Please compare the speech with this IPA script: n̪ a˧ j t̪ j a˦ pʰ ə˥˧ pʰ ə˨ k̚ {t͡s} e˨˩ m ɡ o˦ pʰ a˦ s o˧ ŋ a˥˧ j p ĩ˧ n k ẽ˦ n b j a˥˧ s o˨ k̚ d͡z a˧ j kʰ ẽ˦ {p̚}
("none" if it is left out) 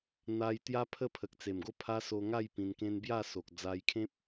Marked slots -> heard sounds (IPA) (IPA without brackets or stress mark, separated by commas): t͡s, p̚